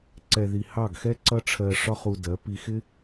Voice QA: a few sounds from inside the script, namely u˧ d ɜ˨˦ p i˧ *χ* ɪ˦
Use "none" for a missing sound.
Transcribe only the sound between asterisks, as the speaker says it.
x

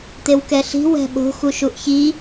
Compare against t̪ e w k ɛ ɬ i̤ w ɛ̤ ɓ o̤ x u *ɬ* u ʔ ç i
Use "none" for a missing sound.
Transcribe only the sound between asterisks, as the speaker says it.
ʃ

